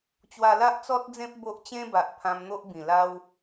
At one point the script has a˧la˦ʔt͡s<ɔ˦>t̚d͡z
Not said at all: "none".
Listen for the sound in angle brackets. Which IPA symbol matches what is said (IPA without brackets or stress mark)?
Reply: ɔ˦